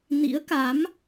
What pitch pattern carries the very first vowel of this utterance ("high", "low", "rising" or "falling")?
rising